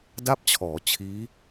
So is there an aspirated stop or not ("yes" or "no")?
yes